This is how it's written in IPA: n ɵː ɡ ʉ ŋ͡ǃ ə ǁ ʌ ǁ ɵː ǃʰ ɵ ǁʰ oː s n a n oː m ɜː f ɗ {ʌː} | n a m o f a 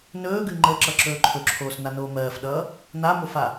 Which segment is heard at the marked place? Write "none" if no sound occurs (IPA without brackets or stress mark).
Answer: ʌː